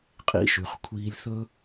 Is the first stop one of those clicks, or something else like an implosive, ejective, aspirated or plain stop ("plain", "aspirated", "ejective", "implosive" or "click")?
ejective